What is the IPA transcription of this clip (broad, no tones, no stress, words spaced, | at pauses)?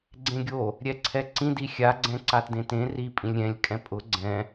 ɡ͡ǀẽɡʲo | ɾʲɛǀʰɛǀĩd ixʲaɡ͡ǀɛ̃ ǀatdẽtẽ ri pʼĩlʲɾʲɛ̃lʲ kʼɛ̃pʼʊ ɡ͡ǀɛ̃